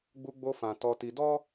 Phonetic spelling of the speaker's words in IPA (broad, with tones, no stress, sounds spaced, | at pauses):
ɡ͡b u˧ ɡ͡b o˧ f ã˨ t ɔ˧ t i˧ d ɔ˦